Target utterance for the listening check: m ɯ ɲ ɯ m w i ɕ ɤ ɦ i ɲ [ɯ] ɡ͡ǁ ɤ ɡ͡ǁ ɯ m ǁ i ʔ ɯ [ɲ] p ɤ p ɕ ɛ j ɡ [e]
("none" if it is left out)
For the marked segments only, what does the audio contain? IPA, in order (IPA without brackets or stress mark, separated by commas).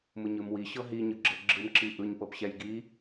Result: ɯ, ɲ, i